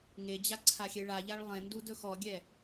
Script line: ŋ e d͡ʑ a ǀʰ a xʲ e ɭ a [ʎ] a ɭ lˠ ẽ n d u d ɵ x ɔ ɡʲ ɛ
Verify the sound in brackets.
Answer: correct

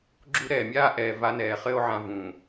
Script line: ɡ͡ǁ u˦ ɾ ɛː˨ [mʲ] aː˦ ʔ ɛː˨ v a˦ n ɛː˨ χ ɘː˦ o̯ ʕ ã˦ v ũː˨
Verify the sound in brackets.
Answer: correct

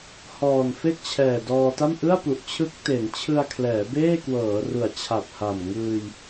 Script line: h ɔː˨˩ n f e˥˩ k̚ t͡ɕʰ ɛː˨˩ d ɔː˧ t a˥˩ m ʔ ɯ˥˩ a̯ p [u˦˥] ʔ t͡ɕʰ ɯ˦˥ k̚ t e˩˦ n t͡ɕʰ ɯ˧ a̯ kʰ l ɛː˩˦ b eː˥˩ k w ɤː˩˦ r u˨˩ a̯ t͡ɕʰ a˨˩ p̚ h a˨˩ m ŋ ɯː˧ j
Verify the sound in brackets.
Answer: incorrect: u˨˩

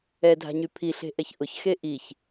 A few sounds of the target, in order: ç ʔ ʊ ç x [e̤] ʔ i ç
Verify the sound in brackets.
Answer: incorrect: e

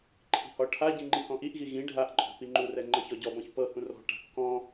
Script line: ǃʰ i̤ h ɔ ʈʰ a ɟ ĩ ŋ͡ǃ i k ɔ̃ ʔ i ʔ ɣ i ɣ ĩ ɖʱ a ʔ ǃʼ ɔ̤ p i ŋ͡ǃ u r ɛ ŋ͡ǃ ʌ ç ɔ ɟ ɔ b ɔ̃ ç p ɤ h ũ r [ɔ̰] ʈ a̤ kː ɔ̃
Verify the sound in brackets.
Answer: incorrect: ɔ̤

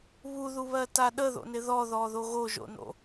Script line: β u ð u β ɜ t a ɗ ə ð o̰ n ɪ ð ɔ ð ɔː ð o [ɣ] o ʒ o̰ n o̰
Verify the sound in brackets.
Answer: correct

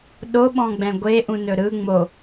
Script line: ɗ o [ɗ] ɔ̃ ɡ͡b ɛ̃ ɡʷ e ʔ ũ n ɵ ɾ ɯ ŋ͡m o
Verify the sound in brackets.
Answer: incorrect: ɓ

